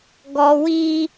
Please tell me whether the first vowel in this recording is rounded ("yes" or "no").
yes